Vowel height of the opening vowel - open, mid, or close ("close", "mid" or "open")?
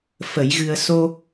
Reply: mid